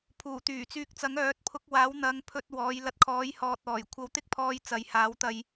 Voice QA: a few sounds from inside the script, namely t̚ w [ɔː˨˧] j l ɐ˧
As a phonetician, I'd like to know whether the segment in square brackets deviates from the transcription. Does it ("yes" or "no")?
no